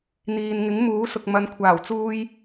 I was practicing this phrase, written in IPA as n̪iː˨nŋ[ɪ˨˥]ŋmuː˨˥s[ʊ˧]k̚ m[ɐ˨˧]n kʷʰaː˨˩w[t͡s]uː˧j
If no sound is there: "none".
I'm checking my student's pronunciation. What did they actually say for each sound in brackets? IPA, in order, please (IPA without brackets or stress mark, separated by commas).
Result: ɪ˨˥, ʊ˨, ɐ˨, t͡s